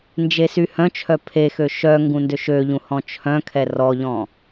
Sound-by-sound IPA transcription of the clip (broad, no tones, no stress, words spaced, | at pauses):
nd͡ʒesyhœ̃t͡ʃʰœ pʰexø ʃœ ŋɡũndøʃøʎũ hɔ̃t͡ʃʰœ̃kʰɛ rɔʎɔ̃